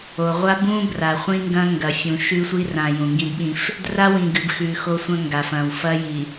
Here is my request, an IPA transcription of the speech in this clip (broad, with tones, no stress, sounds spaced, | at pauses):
o˨ ʁʷ a˦ b ũ˦ b r a˨ χʷ ĩ˦ ŋ ɡ ɐ̃˦ ŋ ɡ ɐ˨ fʲ ũ˨ ʃ ʉ˦ sʷ i˦ r ã˨ j ũ˨ ŋ ɡ ĩ˦ b ɓ ĩ˦ f | d r a˦ w ĩ˨ ɡ ɨ˨ b x ʉ˨ x o˦ sʷ ɐ̃˦ ŋ ɡ a˨ f ɐ̃˨ w f ɐ˦ j i˨